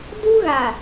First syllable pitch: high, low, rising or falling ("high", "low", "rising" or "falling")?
high